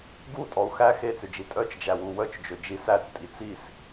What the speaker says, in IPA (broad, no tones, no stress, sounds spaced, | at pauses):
ɡ u tʼ ɔ u̯ x æ x e t͡s ø d͡ʒ i tʼ œ t͡ʃ d͡ʒ æ w u w œ t͡ʃ d͡ʒ ø d͡ʒ i s æ t͡s tʼ i t͡s i s